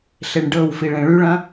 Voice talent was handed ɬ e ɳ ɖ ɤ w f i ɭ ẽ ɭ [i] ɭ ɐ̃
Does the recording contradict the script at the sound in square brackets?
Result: yes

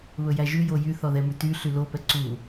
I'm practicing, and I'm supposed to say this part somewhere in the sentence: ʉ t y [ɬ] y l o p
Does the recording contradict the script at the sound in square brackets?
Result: no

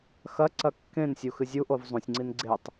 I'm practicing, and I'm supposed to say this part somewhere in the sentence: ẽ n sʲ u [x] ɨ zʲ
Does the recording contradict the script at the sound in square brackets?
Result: no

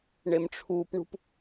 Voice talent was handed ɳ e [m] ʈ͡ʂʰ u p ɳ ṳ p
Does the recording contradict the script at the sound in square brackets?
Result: no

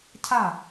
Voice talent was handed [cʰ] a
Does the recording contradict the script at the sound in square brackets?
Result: no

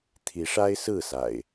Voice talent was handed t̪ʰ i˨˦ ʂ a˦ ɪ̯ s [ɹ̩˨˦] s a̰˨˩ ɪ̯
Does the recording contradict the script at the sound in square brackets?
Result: yes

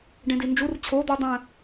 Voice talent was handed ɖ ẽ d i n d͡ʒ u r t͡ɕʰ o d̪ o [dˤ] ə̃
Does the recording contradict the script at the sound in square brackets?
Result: no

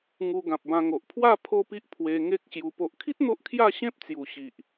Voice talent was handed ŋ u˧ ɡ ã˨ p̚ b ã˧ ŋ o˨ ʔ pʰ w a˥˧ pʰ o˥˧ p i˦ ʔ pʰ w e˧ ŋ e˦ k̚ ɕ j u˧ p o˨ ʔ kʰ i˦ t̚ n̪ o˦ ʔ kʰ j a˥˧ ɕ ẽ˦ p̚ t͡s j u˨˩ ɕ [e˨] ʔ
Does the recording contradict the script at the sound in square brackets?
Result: yes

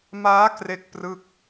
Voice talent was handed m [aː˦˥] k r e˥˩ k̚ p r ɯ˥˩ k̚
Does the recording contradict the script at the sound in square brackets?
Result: no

